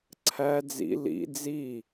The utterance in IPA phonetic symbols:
ǀʰ æ d͡z ḭ l ḭ d͡z i

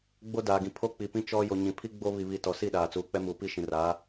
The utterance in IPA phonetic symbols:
ɡ͡b o˦ d aː˨ ɡ ĩ˨ pʰ o˦ k͡p i˨ p ĩ˦ t͡ʃ ɔ˦ j o˨ ɲ ĩ˨ pʰ i˦ ɡ͡b o˦ β i˨ β i˨ t ɔ˨ s i˦˨ ɗ aː˨ t͡s uː˨ k͡p ɛ˦ m uː˨ p i˦ ʃ ĩ˨ r aː˨˦

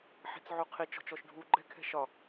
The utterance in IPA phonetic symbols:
ħ i̤ t͡s ʕ u qʰ i t͡ʃ ɔ̤ t͡ʃ ɔ ʃ ɖʱ u ɡ͡ǃ ɛ̤ kʰ ɛ̤ ʃ ɒ

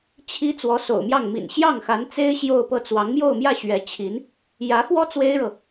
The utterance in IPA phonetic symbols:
t͡ɕʰ i˥ t͡s w ɔ˧˥ s o̰˨˩ ʊ̯ m j ɑ˥˩ ŋ m ḭ˨˩ n ɕ j ɑ˥˩ ŋ x a˧˥ n t͡s e˥ ɪ̯ ɕ j o˥˧ ʊ̯ p ɤ˥˩ t͡s w ɑ˧˥ ŋ m j o˥˧ ʊ̯ m j ä˥˩ ɕ ɥ ɛ˧˥ t͡ɕʰ i˧˥ n | j ä˧˥ x w ɔ˥ t͡s w e˥ ɪ̯ ɻ ɤ˨

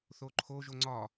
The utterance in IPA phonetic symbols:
θ o ǃʰ o ʒ o ŋ͡ǀ ɒ

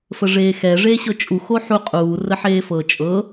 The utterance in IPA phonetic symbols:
f ə ʐ eː x ɛ ʐ eː ɕ ɤ t͡ʃʼ u x o ħ u qʼ uː r ə ħ eː f ɤ t͡ʃʼ ɤ

